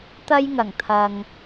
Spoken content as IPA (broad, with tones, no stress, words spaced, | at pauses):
t̪ɐ˥jŋɐ˨˩ŋt̪ʰɐ˨ŋ